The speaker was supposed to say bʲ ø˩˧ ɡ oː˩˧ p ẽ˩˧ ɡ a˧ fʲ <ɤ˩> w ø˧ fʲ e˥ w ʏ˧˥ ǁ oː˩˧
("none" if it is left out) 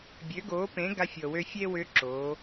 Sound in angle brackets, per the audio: ɤ˩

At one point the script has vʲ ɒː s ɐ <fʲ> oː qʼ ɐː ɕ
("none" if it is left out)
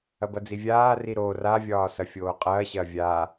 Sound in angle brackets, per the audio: fʲ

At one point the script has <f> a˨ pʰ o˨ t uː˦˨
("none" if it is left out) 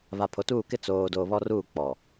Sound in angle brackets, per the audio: β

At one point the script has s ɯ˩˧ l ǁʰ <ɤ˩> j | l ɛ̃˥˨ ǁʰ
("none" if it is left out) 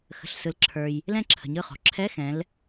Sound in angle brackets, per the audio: ə˞˩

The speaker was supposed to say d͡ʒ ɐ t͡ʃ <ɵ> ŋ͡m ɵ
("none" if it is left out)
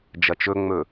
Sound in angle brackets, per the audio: ɵ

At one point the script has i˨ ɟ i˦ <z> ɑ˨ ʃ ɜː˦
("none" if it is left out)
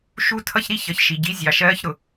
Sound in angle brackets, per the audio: zʲ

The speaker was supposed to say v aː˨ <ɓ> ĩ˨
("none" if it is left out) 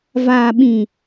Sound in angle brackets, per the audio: ɓ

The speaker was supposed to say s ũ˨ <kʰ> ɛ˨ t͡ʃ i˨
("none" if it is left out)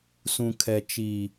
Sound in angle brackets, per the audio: kʰ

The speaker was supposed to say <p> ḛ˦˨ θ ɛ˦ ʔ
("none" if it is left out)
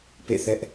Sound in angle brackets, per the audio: p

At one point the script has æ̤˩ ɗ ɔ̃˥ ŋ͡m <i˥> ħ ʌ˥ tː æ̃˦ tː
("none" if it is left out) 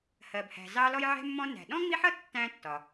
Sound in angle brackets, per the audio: i˦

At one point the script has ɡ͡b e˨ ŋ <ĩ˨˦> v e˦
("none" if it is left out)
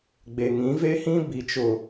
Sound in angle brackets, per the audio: ĩ˨˦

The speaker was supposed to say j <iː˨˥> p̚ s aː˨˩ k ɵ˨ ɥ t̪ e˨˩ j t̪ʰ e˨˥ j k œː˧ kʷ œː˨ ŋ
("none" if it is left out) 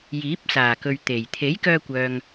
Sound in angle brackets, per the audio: iː˨˥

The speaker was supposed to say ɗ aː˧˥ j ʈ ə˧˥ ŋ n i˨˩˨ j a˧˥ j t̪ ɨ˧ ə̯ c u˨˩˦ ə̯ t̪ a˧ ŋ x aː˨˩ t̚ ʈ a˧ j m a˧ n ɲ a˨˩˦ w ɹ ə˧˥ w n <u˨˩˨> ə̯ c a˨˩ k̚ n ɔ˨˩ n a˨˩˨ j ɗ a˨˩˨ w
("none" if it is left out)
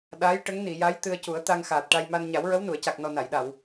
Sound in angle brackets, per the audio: u˨˩˨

